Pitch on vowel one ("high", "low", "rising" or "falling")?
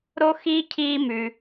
high